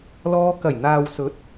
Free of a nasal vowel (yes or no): yes